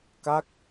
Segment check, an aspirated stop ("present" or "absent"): absent